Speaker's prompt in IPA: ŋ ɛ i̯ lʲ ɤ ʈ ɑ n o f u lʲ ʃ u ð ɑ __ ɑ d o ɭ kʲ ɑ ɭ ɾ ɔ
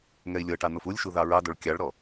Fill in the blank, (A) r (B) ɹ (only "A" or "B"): B